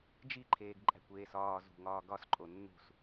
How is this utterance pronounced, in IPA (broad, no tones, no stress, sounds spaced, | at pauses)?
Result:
d͡ʒ i ǃʰ eː ɡ ǃʼ æ̤ kʷ eː s ɒː z ṳ ŋ ɒː ɡ ɒ s ǃʼ o nː ṳ s